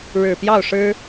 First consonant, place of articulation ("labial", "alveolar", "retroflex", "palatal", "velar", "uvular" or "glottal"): retroflex